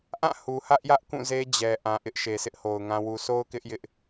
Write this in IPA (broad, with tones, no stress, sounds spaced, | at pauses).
ʔ ã˦˨ h u˨ h ä˦ ʔ j ä˦ ʔ k ũ˦˨ z e˦ d͡ʑ ɛ˨ ʔ ã˨ ʔ ɪ˦ ʔ ʃ e˨ sʰ ɪ˦ ʔ h o˨ ʊ̯ ŋ ã˦ w u˨ sʰ o˦ ʊ̯ k ɪ˦ ʔ j ɪ˦ ʔ